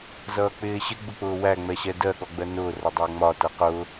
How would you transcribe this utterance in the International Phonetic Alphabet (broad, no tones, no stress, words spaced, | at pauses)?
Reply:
zʌːk͡pɪːɕɪ ɡ͡bʊk͡pʊːwæ ŋ͡mɛɕɛdɜ ɠɔɡ͡bɜnʊː rʌdˤʊːŋ͡mɒ tʌqʊ